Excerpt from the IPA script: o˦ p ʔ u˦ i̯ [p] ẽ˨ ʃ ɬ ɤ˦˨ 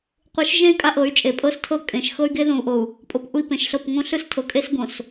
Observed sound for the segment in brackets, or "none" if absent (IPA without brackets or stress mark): p